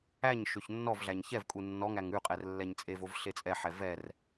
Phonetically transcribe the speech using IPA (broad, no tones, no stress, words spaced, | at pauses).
æɲ ʃøçnːɔvɮæɲ çɛvkʼu nːɔŋæŋ ʉqʼɛr lːɛɲt͡sʼevov ɬet͡sʼɛħɛ vɛr